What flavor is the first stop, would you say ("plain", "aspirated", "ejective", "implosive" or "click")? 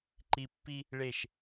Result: click